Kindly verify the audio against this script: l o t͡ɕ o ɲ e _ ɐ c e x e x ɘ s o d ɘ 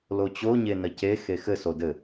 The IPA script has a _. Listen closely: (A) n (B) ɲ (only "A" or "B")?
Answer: A